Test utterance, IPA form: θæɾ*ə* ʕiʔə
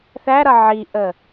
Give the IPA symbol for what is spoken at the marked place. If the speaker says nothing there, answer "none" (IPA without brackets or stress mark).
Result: ʌ